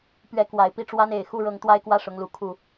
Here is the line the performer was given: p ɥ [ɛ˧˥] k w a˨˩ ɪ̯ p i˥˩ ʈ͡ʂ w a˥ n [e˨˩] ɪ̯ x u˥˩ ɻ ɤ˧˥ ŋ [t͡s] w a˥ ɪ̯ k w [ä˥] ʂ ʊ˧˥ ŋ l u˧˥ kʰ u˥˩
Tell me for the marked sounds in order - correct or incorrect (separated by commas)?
correct, correct, incorrect, incorrect